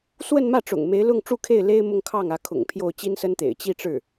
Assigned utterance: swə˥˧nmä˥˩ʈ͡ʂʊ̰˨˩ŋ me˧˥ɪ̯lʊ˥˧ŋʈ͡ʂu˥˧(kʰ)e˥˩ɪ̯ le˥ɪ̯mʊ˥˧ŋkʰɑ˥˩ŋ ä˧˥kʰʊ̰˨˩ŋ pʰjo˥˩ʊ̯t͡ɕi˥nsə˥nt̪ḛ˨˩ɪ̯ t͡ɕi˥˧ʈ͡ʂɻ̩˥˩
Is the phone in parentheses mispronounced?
no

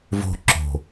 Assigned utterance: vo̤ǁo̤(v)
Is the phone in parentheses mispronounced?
yes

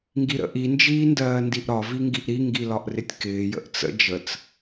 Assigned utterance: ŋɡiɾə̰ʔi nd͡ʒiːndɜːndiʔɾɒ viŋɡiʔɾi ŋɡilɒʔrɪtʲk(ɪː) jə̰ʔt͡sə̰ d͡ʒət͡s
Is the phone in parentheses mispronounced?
no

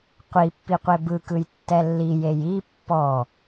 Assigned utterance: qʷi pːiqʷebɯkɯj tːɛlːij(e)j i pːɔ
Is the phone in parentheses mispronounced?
no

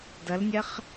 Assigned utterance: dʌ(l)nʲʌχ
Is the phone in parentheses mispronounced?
no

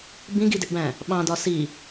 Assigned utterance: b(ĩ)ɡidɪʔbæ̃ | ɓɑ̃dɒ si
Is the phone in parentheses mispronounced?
no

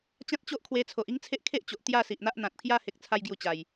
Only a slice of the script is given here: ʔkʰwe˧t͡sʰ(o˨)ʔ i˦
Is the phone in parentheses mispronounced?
no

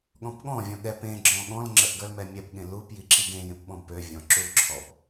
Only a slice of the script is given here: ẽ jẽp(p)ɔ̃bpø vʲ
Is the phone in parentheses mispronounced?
yes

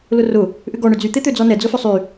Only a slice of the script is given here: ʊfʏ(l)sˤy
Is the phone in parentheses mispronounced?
yes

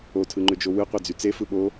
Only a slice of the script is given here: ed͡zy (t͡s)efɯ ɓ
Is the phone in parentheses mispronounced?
no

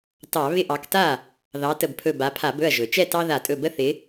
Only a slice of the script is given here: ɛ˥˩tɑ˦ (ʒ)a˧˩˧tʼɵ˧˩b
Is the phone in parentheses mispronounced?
yes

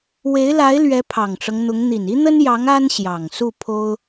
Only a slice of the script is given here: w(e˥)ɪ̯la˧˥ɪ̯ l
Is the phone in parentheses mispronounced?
yes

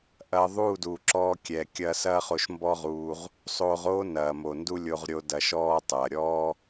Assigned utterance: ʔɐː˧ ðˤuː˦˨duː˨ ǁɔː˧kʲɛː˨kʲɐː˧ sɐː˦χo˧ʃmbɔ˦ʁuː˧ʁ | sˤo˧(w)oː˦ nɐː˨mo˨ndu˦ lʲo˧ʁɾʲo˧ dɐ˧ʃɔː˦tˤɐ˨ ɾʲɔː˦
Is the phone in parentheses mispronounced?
yes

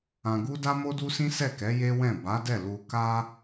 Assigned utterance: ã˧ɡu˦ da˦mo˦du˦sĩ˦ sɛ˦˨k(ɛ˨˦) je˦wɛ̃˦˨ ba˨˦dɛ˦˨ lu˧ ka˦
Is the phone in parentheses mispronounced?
no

